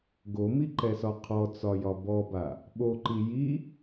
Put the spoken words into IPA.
ɡomiǃɛsɒ qʰɔt͡sɒjɒ bɔba | ɓoǃi ji

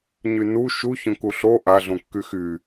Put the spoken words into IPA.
ɲynu ʃuçõku ɬo ʔaɮõkːy xy

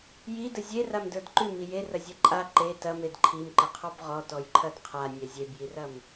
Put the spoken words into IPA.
jidə zʲeramdə˞d ǃʉmi jerɐzʲɛ ǃʼa ǃe tɐmed ǃʰimǃəqʰɔb ʁɔtɔjǃʰɐd qʰanʲɛ zʲebjirɐm

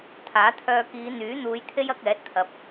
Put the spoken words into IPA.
t̪ʰaː˨˥ t̪ʰœː˧kiː˨˧ n̪yː˨˥n̪uː˨˧jt̪ʰe˥j ɐ˧k̚ɛː˨˥t̚ t̪ʰɐ˨˥p̚

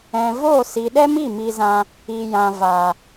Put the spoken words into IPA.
ɛ̃˨voː˦˨ si˨ɗɛ˦mi˦˨ mi˧zã˧ | i˨ jã˨vaː˨

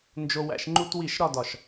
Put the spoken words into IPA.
nd͡ʒo˧wæ̰˧ʃ ŋ͡ǃu˧twi˧˩ʃ ɾɒ˥˧dɒ˧˩ʃ

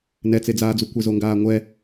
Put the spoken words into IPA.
nɛt͡sed͡zaːd͡zu kʷezoŋɡaːŋʷɛ

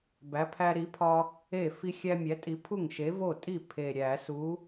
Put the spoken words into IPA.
bæ˨˥pʰæ˦ɾi˨˥pʰɒ˦ | e˥˩ fi˦xʲæ˦mʲæ˨˥tʼi˨˥ pʰu˥˩ŋʃe˨˥vo˥˩tʼi˥˩ pʰe˨˩ɾʲæ˧˩˧su˨˥

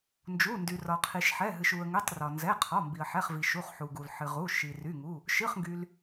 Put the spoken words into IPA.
nd͡ʒu˩˧˩ndy˩rɒ˩ qʰi˩ʃħɛ˩˧˩ɦɨ˩ʃ u˩ə̯ŋɨ˩˧˩tˤ rɒ˩nzɛ˩˧˩ qʰɔ˩˧˩mbi˩ə̯ħɛ˩˧˩χvi˩ ʃu˩˧˩χħu˩ɡu˩l ħɨ˩ʁu˩˧˩ ʃi˩ry˩˧˩ŋu˩˧˩ | ʃɨ˩˧˩χŋɡy˩l

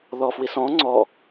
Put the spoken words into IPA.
ðɔfwisɔ̃ ŋ͡ǀɔ

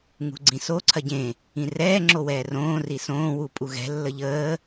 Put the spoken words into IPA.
ŋṳɡ͡ǀĩso ǀʰɐɟẽ | ĩrɛː ŋ͡ǁowɛːrõː risõː wupʼuɣɛ̤ lːəʎəː

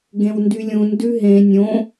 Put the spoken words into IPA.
ɡẽwndylʲũn dʉɦẽ nʲõ

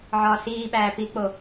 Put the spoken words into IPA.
ʕɒːsiːɓæː pik͡po

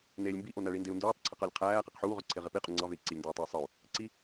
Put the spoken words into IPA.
neːlʲmbi ʔonæɭindeu̯ nduːtˤǀʰiq ɑlʲqʰæː qiqħuːʁøǀʰe ʁepiqʼy ŋ͡ǀɑvei̯ ǀilʲndoːtˤuy̯sˤɯu̯ | ǀi

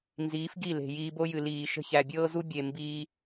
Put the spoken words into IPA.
nziː˨˦fɡi˦˨le̤˨ jiː˧bo˦jɨ˨ liː˨ ʃə̤˧çæ˨bʲɤː˦zu˦ bʲe˨ mbiː˧

